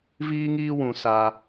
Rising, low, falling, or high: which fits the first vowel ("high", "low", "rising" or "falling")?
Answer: high